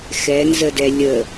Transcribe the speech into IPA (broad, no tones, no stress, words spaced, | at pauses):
xɛnzədɛ lʲə